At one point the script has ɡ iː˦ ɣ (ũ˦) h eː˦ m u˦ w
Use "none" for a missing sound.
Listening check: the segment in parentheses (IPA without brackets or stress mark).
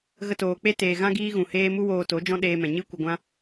ũ˨